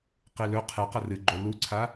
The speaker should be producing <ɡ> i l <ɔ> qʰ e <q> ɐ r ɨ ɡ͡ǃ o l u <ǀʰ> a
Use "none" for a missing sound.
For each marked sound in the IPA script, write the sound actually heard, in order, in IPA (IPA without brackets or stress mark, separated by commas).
q, ɵ, q, ǀʰ